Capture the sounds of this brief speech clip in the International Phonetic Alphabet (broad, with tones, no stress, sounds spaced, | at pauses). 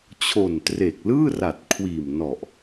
t͡ɕʰ o˨˩ n t r e˨˩ k̚ l ɯː˥˩ r a˨˩ t̚ kʰ w iː˨˩ m n ɔ˨˩ ʔ